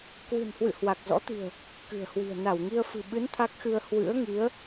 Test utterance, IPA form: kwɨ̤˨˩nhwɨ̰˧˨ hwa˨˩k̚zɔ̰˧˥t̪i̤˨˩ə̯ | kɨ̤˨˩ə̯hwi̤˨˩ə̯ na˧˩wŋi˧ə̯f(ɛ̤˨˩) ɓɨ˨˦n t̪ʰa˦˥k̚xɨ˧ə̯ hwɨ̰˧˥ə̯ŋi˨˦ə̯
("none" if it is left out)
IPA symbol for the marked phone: ɨ̤˨˩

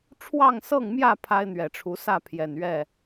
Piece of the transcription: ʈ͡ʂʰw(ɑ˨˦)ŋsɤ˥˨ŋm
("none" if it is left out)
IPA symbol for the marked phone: ɑ˥˨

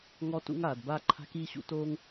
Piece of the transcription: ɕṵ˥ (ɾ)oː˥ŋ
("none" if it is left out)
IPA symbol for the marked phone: t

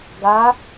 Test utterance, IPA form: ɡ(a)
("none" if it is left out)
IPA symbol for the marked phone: a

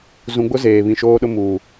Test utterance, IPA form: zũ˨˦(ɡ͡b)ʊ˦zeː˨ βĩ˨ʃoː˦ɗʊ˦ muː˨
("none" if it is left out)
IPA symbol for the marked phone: ɡ͡b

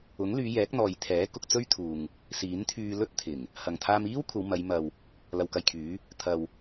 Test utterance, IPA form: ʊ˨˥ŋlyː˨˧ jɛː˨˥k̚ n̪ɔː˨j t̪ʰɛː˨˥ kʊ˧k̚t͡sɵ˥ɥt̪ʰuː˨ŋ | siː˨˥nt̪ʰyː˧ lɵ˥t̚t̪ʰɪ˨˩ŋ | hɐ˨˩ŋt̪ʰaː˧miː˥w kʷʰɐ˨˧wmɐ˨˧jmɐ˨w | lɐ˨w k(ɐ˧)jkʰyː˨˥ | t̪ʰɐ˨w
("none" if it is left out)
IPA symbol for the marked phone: ɐ˧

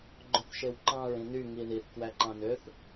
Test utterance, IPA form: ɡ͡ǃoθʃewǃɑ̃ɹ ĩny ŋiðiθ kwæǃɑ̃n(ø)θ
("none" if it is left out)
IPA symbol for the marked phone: ø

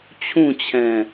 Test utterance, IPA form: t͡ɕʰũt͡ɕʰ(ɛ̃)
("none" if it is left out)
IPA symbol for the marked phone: ɛ̃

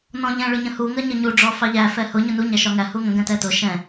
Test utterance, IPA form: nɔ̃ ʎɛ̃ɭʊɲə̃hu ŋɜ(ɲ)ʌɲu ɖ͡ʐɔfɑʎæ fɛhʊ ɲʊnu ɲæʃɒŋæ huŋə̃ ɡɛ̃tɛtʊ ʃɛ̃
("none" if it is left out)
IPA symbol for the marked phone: ɲ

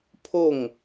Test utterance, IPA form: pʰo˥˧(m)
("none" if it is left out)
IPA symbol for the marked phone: ŋ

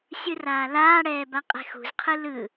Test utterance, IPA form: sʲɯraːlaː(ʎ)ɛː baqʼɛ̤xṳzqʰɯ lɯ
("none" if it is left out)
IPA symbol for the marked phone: ɽ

